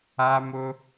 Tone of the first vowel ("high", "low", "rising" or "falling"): high